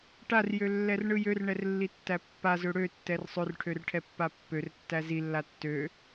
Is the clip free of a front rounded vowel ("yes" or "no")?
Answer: no